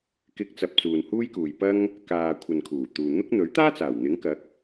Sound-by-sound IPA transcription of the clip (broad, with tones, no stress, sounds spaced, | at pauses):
k ɪ˧ k̚ t͡s ɐ˨ p̚ t͡s uː˨ n h uː˥ j k uː˨ j p ɐ˥ ŋ | k aː˨ kʷʰ ɐ˨ n kʰ uː˨˩ t̪ uː˨ n̪ ʊ˥ k̚ n̪ ɵ˨˥ ɥ t̪ aː˥ t͡s aː˨˩ w n̪ ɪ˨˥ ŋ k ɐ˨˥ k̚